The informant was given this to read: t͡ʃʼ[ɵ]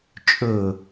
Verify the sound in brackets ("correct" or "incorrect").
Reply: correct